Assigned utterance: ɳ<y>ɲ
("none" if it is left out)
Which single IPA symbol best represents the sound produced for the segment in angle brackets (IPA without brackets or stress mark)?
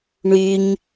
y